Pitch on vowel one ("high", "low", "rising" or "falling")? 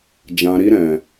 low